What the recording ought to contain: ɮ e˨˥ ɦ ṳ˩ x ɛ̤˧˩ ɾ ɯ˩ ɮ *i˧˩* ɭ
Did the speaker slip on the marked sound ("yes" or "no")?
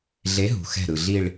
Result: no